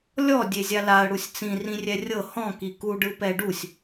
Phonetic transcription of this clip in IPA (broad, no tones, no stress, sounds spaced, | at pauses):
lʲ ɔ dʲ e zʲ a l a ə̯ ɽ u sʲ t͡s ĩ r ĩ rʲ ɛ rʲ ɤ h ɔ̃ k i k u ɖ ɯ p ɛ ɖ u sʲ